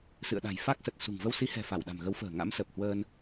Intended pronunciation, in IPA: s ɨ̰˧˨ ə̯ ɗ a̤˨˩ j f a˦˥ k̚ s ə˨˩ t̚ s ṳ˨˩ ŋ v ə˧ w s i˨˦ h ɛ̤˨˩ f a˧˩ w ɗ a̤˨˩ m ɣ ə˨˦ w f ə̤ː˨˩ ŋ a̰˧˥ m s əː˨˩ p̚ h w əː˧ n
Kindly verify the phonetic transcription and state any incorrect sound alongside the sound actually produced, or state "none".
none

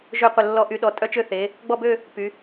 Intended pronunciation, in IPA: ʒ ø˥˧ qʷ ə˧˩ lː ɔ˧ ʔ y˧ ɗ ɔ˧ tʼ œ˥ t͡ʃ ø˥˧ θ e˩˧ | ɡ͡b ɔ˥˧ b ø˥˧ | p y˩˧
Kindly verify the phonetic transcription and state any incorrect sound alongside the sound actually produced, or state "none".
none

